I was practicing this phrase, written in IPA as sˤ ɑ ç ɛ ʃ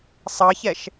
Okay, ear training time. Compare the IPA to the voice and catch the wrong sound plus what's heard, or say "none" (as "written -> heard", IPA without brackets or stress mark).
none